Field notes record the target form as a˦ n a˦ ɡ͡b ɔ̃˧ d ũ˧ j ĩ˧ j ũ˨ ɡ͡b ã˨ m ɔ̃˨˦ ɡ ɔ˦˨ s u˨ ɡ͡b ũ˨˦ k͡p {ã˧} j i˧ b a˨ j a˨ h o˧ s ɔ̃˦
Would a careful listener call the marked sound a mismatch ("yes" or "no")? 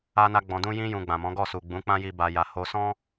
yes